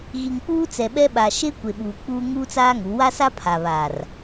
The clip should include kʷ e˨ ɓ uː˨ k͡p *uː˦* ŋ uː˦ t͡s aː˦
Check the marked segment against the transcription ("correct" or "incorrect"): correct